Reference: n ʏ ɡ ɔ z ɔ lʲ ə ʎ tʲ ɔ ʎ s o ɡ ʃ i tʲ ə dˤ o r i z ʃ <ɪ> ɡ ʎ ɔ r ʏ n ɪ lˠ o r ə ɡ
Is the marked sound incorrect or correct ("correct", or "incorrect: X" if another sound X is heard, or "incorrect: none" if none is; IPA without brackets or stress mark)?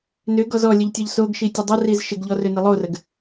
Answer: correct